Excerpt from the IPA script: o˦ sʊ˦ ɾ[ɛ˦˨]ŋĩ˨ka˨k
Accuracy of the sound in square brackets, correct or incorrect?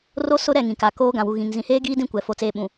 correct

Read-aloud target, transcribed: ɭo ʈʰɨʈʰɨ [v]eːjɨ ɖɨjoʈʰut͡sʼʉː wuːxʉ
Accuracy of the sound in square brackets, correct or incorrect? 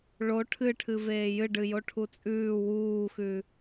correct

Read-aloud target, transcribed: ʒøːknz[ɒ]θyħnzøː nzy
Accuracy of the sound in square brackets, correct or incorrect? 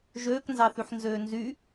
incorrect: ɑ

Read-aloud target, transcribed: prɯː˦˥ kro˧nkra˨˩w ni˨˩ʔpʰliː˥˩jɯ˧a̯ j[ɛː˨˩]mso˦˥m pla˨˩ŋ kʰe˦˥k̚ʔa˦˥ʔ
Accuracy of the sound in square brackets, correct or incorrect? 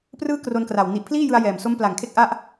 correct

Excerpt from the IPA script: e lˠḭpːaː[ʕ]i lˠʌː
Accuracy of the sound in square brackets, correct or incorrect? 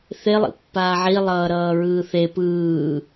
correct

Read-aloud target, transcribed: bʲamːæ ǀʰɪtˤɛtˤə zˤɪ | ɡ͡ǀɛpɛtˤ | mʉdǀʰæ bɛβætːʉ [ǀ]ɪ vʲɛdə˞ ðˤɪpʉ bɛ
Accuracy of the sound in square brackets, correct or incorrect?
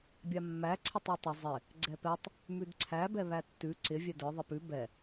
correct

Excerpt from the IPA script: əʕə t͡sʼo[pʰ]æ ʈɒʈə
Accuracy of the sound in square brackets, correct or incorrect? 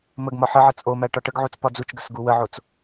incorrect: m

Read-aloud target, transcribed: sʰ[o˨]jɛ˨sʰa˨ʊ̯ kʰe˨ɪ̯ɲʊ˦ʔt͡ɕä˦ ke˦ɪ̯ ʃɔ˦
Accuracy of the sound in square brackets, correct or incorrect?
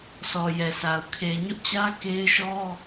incorrect: ɔ˨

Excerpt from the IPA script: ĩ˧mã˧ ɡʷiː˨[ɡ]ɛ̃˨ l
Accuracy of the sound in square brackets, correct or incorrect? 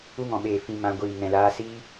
incorrect: ŋ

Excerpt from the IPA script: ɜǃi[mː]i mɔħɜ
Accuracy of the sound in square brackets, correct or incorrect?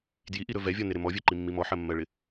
correct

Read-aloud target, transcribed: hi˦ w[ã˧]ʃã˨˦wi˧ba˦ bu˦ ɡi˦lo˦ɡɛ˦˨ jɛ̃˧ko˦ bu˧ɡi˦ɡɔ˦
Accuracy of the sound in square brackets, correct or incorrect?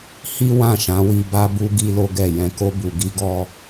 incorrect: ã˦˨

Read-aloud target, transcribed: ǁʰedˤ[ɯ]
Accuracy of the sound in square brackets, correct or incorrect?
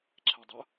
incorrect: ʊ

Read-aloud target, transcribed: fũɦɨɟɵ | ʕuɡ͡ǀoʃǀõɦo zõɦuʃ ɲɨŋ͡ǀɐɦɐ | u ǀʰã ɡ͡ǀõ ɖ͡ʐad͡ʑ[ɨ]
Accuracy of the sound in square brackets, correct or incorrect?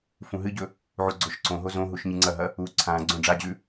incorrect: ʉ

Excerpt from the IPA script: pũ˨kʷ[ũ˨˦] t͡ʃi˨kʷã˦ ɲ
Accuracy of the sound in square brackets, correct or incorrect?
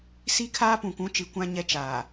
correct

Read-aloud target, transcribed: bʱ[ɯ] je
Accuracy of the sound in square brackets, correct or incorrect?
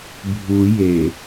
incorrect: u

